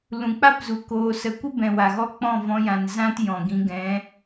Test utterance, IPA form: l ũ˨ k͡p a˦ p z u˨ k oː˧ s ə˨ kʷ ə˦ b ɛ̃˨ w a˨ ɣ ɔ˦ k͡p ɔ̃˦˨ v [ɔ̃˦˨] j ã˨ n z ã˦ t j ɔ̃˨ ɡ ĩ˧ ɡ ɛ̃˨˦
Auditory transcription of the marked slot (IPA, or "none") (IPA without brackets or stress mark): ɔ̃˧